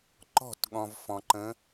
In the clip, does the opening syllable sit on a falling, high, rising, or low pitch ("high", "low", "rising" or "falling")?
falling